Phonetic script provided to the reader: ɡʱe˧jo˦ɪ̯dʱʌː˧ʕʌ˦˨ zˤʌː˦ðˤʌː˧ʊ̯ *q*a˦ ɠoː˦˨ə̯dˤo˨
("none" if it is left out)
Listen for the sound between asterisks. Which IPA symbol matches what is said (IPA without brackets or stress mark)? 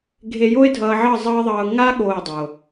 ŋ